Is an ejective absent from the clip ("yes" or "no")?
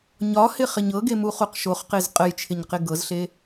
no